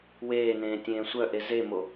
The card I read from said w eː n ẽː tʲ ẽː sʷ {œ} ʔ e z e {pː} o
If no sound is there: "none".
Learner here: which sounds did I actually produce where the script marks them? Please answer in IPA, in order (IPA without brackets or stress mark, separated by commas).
œ, m